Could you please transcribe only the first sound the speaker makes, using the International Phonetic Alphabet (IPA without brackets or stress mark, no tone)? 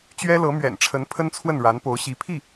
t͡ɕ